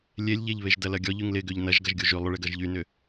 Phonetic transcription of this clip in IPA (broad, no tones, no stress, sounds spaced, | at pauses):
lʲ e lʲ ʎ e ʎ β e ʒ d ɐ l ɐ ɡʲ ɔ ʎ y ŋ l ɪ ɡ ø ʎ n ɐ ʒ ɡ ɐ ʒ ɡʲ o ʒ y lˠ ʊ ɭ e ɡ ɐ ʒ ʎ y n ʏ